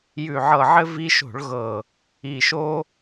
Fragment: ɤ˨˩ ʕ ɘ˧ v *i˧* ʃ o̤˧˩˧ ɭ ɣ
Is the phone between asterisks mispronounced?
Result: no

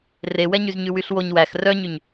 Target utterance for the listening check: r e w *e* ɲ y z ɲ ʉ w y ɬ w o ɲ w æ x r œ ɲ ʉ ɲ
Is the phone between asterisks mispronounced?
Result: yes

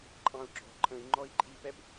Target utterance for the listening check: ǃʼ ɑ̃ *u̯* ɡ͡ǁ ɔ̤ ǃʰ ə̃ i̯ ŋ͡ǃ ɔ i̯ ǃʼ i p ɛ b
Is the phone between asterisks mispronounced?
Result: no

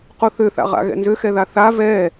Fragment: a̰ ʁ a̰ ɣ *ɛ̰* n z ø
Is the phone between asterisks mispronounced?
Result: no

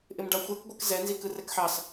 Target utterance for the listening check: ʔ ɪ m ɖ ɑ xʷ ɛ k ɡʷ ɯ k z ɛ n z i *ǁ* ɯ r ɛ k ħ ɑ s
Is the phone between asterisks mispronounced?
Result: yes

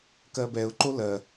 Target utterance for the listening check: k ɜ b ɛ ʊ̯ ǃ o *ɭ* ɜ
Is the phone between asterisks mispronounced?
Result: yes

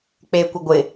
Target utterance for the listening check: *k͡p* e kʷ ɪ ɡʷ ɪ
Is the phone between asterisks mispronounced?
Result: no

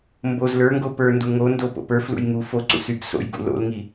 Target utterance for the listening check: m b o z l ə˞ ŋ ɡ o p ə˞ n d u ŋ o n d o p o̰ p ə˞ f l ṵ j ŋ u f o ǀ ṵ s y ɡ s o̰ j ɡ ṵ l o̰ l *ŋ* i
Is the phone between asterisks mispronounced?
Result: no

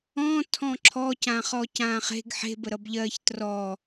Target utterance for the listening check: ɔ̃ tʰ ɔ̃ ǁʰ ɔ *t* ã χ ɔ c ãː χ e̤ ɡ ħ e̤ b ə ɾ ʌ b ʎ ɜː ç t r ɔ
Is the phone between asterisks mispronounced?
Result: yes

